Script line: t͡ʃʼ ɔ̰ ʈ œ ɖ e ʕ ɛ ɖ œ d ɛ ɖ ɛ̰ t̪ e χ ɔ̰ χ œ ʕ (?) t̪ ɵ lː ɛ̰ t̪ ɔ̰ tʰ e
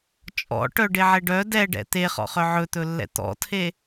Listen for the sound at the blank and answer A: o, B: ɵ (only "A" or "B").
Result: B